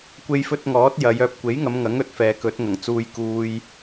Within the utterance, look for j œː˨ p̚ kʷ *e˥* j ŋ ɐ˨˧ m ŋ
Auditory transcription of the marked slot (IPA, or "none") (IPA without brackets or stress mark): e˨˥